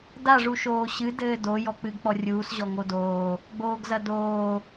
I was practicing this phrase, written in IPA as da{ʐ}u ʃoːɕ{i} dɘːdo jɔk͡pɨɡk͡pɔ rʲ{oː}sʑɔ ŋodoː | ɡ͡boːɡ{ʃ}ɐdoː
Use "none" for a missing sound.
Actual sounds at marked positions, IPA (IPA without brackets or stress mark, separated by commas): ʐ, ɨ, uː, z